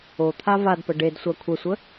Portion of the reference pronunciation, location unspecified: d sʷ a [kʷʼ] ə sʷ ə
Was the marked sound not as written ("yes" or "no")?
yes